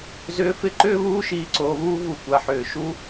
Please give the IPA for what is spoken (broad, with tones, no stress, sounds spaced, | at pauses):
z ʏː˧ f ɪ˦ ǃ ʏː˦ β uː˦ ʃ iː˧ ǀ oː˧ β uː˦ v u˦˨ kʷ a˧ ħ ʏː˨ ʃ u˦